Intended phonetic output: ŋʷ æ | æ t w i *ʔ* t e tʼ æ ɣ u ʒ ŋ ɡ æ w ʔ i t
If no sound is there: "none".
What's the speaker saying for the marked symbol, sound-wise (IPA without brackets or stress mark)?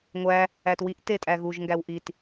ʔ